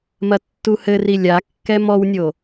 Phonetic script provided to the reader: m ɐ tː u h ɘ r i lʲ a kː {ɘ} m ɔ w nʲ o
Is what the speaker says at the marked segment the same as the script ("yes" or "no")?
no